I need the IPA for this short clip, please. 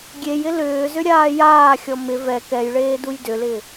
ɡʲ e j ɪ l ʏː z ʏ ɾʲ aː j aː xʲ ɔ m ɪ v ɛ k ɛ j ɭ eː d u j d ʏ l ɪː

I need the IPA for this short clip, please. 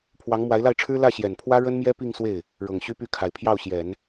pʰ w ɑ˧˥ ŋ m w a˧˥ ɪ̯ l a˥˩ ɪ̯ ʈ͡ʂʰ ɻ̩˥ l ä˥˩ ɕ j ɛ˨˩ n pʰ w ä˥ ɻ ə˥ n m j ɛ˥ p i˥˧ ŋ s w e˥˩ ɪ̯ | ɻ ɤ˨˩ ŋ ɕ y˥ p y˥˩ kʰ a˨˩ ɪ̯ pʰ j ɑ˥˩ ʊ̯ ɕ j ɛ˨˩˦ n

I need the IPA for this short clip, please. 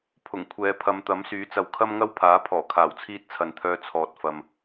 pʰ ʊ˨˩ ŋ kʷʰ ɛː˨˧ pʰ ɐ˨˧ m t̪ ɐ˨˥ m s yː˨˥ t͡s ɐ˨ w kʰ ɐ˥ m ŋ ɐ˥ w pʰ aː˨˥ pʰ ɔː˨˩ kʰ aː˨˩ w t͡sʰ iː˥ t̚ t͡sʰ ɐ˨ n t̪ʰ œː˧ t͡sʰ ɔː˨ t̚ f ɐ˨ m

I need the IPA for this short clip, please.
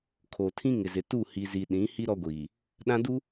kʰ o˨ tʰ ĩ˦ ŋ ɪ˨ z ɪ˨ t u˦˨ h i˨ z i˨ ɗ ĩ˨˦ h i˦ ɾ ɔ˦ ɡʷ iː˨ | ɗ ã˦ d u˦

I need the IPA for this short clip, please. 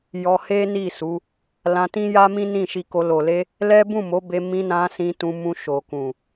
j ɔ˧ h e˦ n i˦˨ s u˨˦ | l ã˧ t ĩ˦ j a˦ m ĩ˦ n ĩ˦˨ ʃ i˧ k o˧ l o˨ l e˧ | l ɛ˦ b ũ˦˨ m o˨˦ b e˧ m ĩ˧ n ã˧ s ĩ˧ t ũ˧ m ũ˧ ʃ o˨ k ũ˨

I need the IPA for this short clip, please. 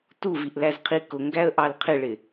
t u v i ʔ l æ z qʰ i k ʊ ŋ ɡ æ ə̯ ʔ ɑ l qʰ ɪ ɭ ɪ

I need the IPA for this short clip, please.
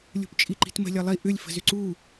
lʲ ṳ p t͡ʃʼ i ǃ i̤ t m ə̤ lʲ ʌ lˠ i ʔ ʏ lʲ f ə̤ z ʏ ǀ u

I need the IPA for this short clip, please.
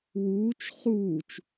w uː t͡ʃ χ uː t͡ʃ

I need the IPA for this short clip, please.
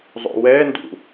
zˤ o̰ w ɛ n d ṵ

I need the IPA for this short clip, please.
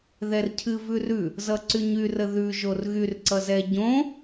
ð ɛ r cʰ ɨ v ʉ r ʉ | z ʌ ǀ y ɲ y r ə ð ʉ ʒ o r ɣ y r ǀ ʌ z ɛ ɟ õ

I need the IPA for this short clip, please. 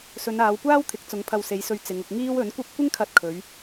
s ɵ˨˧ n aː˨˧ w kʷ aː˥ w t̪ʰ ɪ˨˥ k̚ t͡s ʊ˨˧ ŋ pʰ ɐ˧ w s e˨˧ j s ɵ˧ ɥ t͡s ɪ˨˧ ŋ ʊ˧ k̚ ŋ iː˥ w ɵ˨˥ n kʷ ɐ˥ p̚ kʷ ɪ˥ ŋ kʰ ɐ˧ t̚ kʰ ɵ˨˧ ɥ

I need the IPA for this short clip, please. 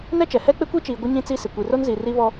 n ɛ˦ t͡ʃ ɛ˨ h ɛ˦ k͡p ɪ˦ kʷ i˦ t͡ʃ iː˨ ɡʷ ɪ˦ ɲ ĩ˦ t͡s i˦ s ɪ˨ kʷ i˨ r o˦ n z i˨ r i˦ β ɔ˦

